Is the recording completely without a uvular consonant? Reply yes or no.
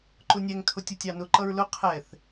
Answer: no